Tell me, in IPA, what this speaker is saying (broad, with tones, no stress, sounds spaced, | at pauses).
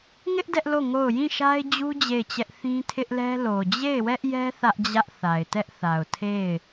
ŋ ɪ˦ ʔ d ɛ˦ ʔ l o˦˨ ŋ o˦˨ ʊ̯ j ĩ˦˨ ʃ a˦ ɪ̯ d͡ʑ u˦ d͡ʑ e˦˨ ɪ̯ t͡ɕ ɛ˦ ʔ θ ĩ˦ tʰ ɪ˦ ʔ l ɛ˦ l o˨ d͡ʑ e˦˨ ɪ̯ w ɛ˦ ʔ j ɛ˦ θ ä˦ ʔ d͡ʑ ä˦ ʔ θ a˨ ɪ̯ t ɛ˦ ʔ θ a˨ ʊ̯ tʰ e˦˨ ɪ̯